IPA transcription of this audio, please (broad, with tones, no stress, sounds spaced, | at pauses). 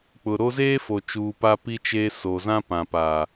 k͡p ʊ˨ ɾ o˦ z eː˦ f o˨ t͡ʃ uː˨ p a˦ p i˦ t͡ʃ e˦ s o˨ z ã˦ p ã˨ p aː˨